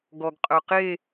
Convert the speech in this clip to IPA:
ɡ ɔ ɡ qʼ œ q e

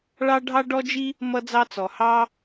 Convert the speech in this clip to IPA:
ɭ ɑ˥ ɖʱ ɑ˥ ɖ ɔ˥ d͡ʒ i˥ | m ʌ˥ d͡z ɑ˥ t͡s ɔ˩ h ɑ˥

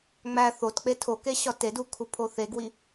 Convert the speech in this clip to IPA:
ŋ͡m æ θ o t k͡p e tʰ o k e ɕ ɒ t e d u kʰ u pʰ o θ e ɡ w i

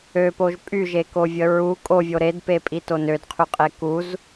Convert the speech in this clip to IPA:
ø p o ʒ pʼ y ʒ e k o vʲ ə ɹ u kʼ o vʲ o ɾ e d p e pʼ i t o n ø d qʰ y qʼ e k u z

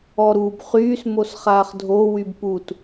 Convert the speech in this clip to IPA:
ɔ ɾ uː b χ yː s m o s χ aː χ dʱ o w y b p u t

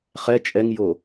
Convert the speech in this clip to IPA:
χ ɛ t͡ʃʼ ɛ ŋ j o

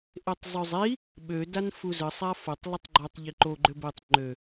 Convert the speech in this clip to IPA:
ʔ e tˤ zˤ ø zˤ i | ɓ ø d a n f u z ə sˤ a f o tˤ lˠ ə tˤ ɡ͡ǃ ɔ tˤ ʎ i ǃ o ɡ͡ǃ ø b e tˤ ŋ͡ǃ ø

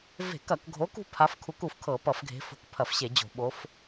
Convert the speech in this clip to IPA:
v e̤˧˩˧ k ɐ˧˩˧ k ɡʱ o˨˦ k ṳ˨˦ pʰ a˨˦ f kʰ u˨˦ k u˧˩˧ f kʰ ɤ˧˩˧ p ʌ˧˩˧ f ɡʱ e̤˨˦ f o̤˨˦ k pʰ ɐ˧˩˧ f ɕ e˧˩˧ d͡ʑ o̤˧˩˧ ɓ o˨˦ f

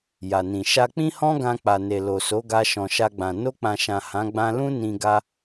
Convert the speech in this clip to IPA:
j a˨ n ĩ˨ ʃ a˧ k͡p ĩ˦ h ɔ̃˦ ɡ ã˧ k͡p a˨ n e˨ l o˨ s o˨˦ ɡ a˧ ʃ ɔ̃˨ ʃ a˧ ɡ͡b ã˨ n o˧ k͡p ã˨ ʃ ã˨ h ã˨˦ ɡ͡b ã˧ l ũ˦ n ĩ˧ ɡ a˦

